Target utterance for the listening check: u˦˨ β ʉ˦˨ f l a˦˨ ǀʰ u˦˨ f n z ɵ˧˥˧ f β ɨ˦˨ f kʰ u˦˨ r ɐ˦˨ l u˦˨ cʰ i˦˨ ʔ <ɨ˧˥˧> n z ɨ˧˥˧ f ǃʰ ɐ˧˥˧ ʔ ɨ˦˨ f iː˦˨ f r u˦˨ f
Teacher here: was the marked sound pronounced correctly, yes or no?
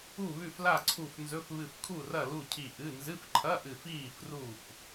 yes